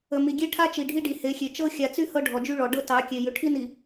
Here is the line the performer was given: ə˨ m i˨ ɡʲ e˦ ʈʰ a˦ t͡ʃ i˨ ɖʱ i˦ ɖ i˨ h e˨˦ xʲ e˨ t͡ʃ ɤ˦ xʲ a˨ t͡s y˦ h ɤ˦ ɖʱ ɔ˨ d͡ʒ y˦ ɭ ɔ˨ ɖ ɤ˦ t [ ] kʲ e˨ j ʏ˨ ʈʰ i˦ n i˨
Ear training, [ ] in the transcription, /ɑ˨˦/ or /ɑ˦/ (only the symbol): ɑ˨˦